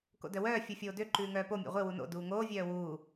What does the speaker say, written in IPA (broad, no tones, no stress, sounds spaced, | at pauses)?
k o̰ d œ w œː fʲ u fʲ oː d ø ǃ ʉː ŋ œː p o mʲ ḛ ʁʷ e w u n o̰ d uː ŋ oː vʲ œː w uː